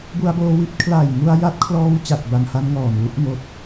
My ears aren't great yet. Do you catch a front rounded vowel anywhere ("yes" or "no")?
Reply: no